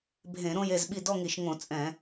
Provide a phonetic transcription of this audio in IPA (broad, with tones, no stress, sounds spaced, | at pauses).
bʱ ẽ˧˩˧ ɾ õ˥˧ j e˥˩ z ɓ i˥˩ d ɔ˥˧ ŋ i˧˩˧ ʃ ŋ õ˧˩˧ t͡sʼ ɛ̃˧˩˧